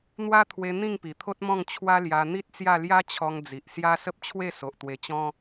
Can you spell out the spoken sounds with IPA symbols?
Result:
n̪ w a˦ t̪ʰ w e˧ n̪ ĩ˥˧ ŋ p i˨˩ t̪ʰ o˦ t̚ m ɔ̃˥˧ ŋ t͡ɕʰ w a˦ l j a˧ n̪ i˦ t̚ t͡s j a˥˧ l j a˦ t͡ɕʰ ɔ˧ ŋ d͡z i˨ ʔ s j a˦ s ə˦ p̚ t͡ɕʰ w e˥˧ s o˨ ʔ t̪ w e˧ t͡ɕ ɔ̃˦

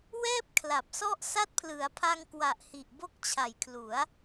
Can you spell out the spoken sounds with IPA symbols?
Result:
w ɛː˥˩ p̚ kʰ l a˨˩ p̚ s ɔ˥˩ ʔ s a˦˥ t̚ pʰ l ɯ˩˦ a̯ pʰ a˧ ŋ k w a˨˩ ʔ h i˨˩ ʔ b o˦˥ k̚ t͡ɕʰ a˨˩ j kʰ l u˩˦ a̯

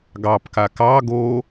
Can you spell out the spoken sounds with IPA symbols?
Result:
ɡ ɑ p k a k ɑ ɡ o

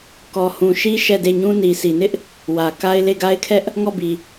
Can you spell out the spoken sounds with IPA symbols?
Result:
k ɔ˨ h ũ˨ ʃ i˦ ʃ ɛ˦˨ d e˦˨ ɲ ũ˦ n i˨ s i˨ n ɪ˦ ʔ | w ä˨ k a˦ ɪ̯ l e˦˨ ɡ a˦ ɪ̯ kʰ ɛ˦ ʔ | ŋ ɔ˦˨ b i˨

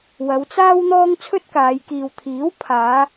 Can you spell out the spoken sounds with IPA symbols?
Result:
w ɐ˨˧ w t͡s aː˥ w n̪ ɔː˥ ŋ t͡sʰ ɵ˥ t̚ k aː˨˧ j k iː˨ w t̪ʰ iː˨˥ w pʰ aː˨˧

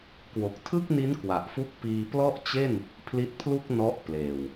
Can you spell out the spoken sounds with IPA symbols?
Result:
k w o˨˩ k̚ tʰ ɯ˥˩ k̚ n i˦˥ n k w a˨˩ ʔ f u˥˩ k̚ p iː˧ p l ɔ˥˩ ʔ t͡ɕ e˥˩ n | pʰ l i˦˥ t̚ pʰ l u˥˩ k̚ n ɔ˦˥ ʔ p l eː˨˩ w

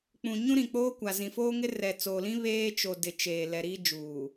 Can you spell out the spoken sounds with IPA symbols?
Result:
k͡p ũ˨ ɲ ũ˦ ɾ ĩ˨ k͡p oː˦ kʷ a˨ z ĩ˨ f oː˦ ŋ ɪ˦ r ɛ˨ t͡s oː˨ l ĩ˦ β eː˦ t͡ʃ o˨ d ɪ˨ t͡ʃ eː˨ l ɛ˨ ɾ iː˦ d͡ʒ uː˨

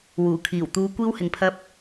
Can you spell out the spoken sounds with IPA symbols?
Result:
w uː˨˩ kʰ iː˨˩ w t̪ uː˨˧ kʷ iː˥ w h ɪ˧ ŋ pʰ ɐ˥ p̚

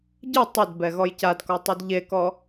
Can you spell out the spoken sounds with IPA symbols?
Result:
ɟ ɯ tˤ ɘ d b ɛ ɣ ɔ j c a d k ɔ tˤ y d ʎ e k ɔ

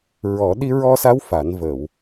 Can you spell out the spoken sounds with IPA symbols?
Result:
ɹ ɔ˨˩˦ ɗ i˧ ɹ ɔ˧ s a˧˥ w f a˨˩˦ n v ə˨˩˨ w

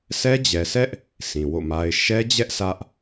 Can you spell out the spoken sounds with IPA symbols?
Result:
sʰ ɛ˦ d͡ʑ ɛ˨ sʰ ɛ˦ ʔ | sʰ ĩ˨ w o̰˦˨ m a˦ ɪ̯ ʃ ɛ˦ d͡ʑ ɛ˦ ʔ s ä˦ ʔ

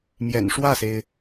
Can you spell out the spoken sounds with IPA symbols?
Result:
m j ɛ̰˨˩ n ʂ w ä˥˩ s e˩ ɪ̯

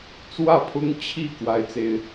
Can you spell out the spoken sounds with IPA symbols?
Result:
t͡s w ä˥˨ pʰ ʊ˦ ŋ t͡ɕʰ i˥˨ k w a˦ ɪ̯ t͡s e˨˦ ɪ̯

